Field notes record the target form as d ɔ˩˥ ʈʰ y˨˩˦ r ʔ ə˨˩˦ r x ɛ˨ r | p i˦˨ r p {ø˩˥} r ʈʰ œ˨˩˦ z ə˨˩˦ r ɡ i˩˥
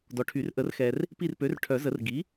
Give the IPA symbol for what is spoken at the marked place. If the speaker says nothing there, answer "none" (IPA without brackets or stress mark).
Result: ø˩˥